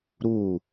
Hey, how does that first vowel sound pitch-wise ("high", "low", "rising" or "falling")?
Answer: falling